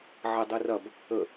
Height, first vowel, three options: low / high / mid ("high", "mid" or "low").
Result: mid